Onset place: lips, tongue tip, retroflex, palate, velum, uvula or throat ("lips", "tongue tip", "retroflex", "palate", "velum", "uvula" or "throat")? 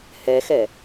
throat